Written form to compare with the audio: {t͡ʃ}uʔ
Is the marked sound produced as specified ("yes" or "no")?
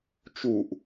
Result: yes